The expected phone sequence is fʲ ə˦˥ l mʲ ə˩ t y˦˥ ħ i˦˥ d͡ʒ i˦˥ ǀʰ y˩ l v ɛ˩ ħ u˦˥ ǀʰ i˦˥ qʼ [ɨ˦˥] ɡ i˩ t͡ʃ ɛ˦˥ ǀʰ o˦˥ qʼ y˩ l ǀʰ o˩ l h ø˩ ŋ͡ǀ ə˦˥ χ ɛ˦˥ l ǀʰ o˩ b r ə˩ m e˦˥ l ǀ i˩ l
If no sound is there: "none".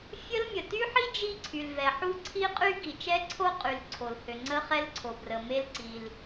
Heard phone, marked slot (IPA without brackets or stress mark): y˦˥